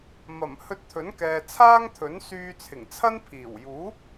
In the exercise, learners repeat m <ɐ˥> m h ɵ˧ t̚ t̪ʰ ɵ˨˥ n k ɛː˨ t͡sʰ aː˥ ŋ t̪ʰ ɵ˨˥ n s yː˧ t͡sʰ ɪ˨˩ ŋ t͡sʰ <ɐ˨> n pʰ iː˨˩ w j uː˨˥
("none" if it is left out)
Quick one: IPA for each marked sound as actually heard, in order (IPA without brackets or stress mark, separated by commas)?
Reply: ɐ˨˩, ɐ˥